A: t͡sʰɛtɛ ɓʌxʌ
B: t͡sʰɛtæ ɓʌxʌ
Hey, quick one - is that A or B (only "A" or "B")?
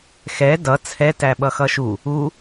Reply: B